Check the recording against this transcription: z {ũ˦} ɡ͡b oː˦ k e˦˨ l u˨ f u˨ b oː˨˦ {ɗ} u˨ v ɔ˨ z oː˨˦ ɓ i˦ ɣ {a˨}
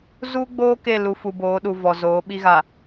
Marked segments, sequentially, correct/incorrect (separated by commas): incorrect, correct, correct